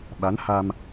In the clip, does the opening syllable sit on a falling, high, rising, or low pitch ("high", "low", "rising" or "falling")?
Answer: rising